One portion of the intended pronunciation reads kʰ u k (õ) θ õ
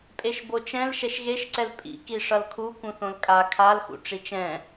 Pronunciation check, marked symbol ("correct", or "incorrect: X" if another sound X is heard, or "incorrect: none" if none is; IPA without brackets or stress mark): incorrect: ũ